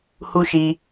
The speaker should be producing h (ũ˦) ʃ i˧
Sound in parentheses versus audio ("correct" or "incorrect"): incorrect